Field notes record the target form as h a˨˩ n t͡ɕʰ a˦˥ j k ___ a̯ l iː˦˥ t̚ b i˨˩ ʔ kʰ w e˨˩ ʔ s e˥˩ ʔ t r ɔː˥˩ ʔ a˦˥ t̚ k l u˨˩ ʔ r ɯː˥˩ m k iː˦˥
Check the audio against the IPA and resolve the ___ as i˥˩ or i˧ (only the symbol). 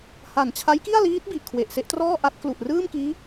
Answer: i˥˩